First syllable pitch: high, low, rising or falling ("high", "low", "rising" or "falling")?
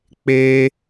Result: high